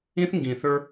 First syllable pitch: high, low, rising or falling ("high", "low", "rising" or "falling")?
high